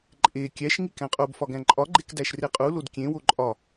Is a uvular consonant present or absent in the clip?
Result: present